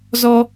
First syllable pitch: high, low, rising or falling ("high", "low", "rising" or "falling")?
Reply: high